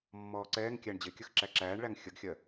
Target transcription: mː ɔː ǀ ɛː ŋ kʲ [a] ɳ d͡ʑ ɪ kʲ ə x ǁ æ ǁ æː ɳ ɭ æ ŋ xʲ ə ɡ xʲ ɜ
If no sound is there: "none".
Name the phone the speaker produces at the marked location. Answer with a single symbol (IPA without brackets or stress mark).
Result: æ